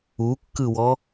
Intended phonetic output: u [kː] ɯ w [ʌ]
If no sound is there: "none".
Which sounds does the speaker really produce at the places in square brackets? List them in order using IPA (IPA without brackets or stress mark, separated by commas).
kː, ɔ